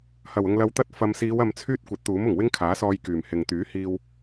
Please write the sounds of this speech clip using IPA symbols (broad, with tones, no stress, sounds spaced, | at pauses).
h ɐ˨˩ w ʊ˨ ŋ l ɐ˨ w t̪ ɐ˧ t̚ f ɐ˨ m s iː˨˧ w ɐ˨ m t͡sʰ yː˥ t̚ kʷ ɐ˨˥ t̚ t̪ uː˨˥ m ʊ˨˩ ŋ w ɪ˥ ŋ kʰ aː˨˥ s ɔː˧ j k yː˨˩ m h ɪ˨ ŋ t̪ yː˨˥ h iː˧ w